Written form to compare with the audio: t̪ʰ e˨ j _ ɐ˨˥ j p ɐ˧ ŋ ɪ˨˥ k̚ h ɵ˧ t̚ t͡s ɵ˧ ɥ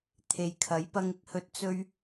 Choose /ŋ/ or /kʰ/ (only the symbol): kʰ